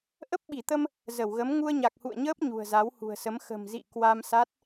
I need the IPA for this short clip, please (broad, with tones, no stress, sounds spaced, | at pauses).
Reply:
ʔ ə˦˥ p̚ ɓ i˧˩ t̪ ə˧ m | z ə˧˩ w ɣ ə˨˦ m ŋ u˧ ə̯ ɲ a˨˩ k̚ h ṵ˧˨ ə̯ ɲ əː˦˥ p̚ ɲ ṳ˨˩ ə̯ z a˨˦ w h ṳ˨˩ ə̯ s ə˨˦ m x ə̤˨˩ m z ḭ˧˨ k w a˧ m s a˦˥ t̚